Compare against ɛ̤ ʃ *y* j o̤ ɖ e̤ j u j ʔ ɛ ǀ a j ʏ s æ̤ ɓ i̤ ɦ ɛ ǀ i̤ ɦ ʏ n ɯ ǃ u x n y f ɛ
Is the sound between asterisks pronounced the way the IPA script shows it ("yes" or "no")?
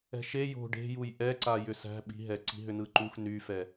no